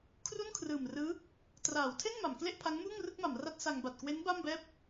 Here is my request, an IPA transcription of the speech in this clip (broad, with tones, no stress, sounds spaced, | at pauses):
kʰ r u˥˩ n kʰ r ɯː˨˩ m r ɯː˦˥ | t r aː˩˦ w tʰ e˥˩ n m a˩˦ m k l e˥˩ ʔ pʰ a˦˥ ŋ m uː˥˩ ŋ r ɯ˥˩ k̚ m a˩˦ m r a˦˥ t̚ s a˧ ŋ b a˨˩ t̚ k w e˦˥ n b a˥˩ m b ɛː˥˩ p̚